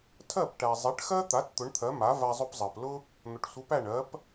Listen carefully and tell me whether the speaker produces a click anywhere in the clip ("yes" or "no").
no